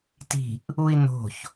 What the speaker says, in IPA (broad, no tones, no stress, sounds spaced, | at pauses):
t i̤ ʔ | u i̯ n o̤ ç